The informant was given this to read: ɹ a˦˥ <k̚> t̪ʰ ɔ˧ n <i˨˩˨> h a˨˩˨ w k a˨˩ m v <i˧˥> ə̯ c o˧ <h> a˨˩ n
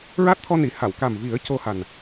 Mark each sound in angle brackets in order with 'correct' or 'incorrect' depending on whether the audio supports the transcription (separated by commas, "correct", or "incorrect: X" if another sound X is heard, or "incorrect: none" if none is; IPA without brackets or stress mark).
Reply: incorrect: t̚, correct, incorrect: i˨˩˦, correct